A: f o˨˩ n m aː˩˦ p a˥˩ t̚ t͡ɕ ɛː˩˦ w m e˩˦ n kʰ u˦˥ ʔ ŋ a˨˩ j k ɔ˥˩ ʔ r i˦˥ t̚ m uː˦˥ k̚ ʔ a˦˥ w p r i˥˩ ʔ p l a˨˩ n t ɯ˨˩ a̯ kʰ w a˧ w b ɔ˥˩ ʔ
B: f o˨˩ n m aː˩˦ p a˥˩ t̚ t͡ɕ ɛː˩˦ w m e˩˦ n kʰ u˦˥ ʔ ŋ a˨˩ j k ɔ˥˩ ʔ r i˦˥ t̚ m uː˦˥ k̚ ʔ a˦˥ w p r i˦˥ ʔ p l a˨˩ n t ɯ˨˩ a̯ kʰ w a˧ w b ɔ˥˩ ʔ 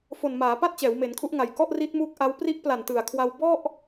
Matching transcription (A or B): B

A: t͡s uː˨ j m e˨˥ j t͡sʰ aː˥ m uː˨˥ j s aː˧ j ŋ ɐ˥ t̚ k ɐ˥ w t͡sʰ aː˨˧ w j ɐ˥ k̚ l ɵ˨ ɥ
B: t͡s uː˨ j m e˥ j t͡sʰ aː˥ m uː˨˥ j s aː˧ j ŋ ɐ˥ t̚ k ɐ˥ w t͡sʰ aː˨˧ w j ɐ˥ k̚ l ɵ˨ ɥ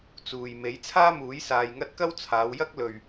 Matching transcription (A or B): A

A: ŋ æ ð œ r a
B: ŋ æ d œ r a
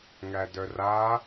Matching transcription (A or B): B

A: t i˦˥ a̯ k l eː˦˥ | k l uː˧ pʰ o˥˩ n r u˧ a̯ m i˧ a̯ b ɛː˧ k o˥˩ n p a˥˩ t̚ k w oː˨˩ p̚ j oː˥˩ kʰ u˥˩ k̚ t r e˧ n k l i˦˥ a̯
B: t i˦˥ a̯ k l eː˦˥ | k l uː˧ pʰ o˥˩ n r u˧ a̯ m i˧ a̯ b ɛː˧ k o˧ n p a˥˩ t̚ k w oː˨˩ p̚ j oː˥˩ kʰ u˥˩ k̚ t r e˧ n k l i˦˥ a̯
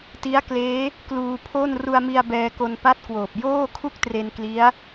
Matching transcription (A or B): B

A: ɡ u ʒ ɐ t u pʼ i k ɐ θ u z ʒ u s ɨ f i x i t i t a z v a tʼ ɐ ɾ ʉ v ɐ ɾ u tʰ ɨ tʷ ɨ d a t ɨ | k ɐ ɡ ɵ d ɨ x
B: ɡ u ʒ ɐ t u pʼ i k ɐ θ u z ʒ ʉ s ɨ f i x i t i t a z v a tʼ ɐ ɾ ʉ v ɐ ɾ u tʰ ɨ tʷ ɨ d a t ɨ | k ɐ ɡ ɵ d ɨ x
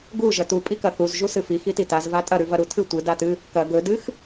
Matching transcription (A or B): A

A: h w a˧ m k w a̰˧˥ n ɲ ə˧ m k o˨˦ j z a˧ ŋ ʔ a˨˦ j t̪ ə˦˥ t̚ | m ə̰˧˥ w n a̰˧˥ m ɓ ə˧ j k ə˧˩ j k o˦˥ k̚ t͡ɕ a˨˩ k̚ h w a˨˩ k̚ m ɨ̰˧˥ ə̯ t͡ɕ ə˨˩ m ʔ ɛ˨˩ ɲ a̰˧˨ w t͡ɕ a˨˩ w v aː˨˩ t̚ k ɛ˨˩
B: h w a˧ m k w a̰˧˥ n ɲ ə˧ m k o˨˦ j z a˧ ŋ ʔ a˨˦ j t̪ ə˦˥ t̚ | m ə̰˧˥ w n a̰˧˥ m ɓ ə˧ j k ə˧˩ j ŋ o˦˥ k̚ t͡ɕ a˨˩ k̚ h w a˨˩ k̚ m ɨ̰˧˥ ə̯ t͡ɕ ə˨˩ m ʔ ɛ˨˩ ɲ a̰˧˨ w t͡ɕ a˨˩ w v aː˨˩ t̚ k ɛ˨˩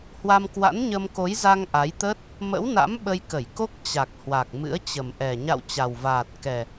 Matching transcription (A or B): A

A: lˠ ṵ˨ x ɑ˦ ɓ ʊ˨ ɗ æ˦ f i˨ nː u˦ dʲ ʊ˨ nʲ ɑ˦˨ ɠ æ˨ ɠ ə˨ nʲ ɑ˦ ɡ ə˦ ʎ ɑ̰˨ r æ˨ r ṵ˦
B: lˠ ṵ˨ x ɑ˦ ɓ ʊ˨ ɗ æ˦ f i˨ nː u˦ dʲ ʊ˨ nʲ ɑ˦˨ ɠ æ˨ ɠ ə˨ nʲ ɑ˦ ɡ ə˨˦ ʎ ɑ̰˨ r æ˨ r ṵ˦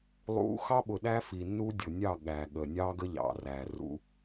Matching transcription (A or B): A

